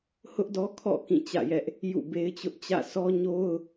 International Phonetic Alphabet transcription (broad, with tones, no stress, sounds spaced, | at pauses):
h ʊ˦ ʔ d ɔ˦ kʰ ɔ̰˦˨ k ĩ˦˨ t͡ɕ ä̰˦˨ j ɛ˦ ʔ | j ṵ˦˨ b e˦ ɪ̯ t͡ɕ ʊ˦ ʔ t͡ɕ ä̰˦˨ s ɔ˦ ɲ o˦ ʊ̯